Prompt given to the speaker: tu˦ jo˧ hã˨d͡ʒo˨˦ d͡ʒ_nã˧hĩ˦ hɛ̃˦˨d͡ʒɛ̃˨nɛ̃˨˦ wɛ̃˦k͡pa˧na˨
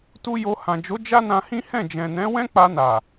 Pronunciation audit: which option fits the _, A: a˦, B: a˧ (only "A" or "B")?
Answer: A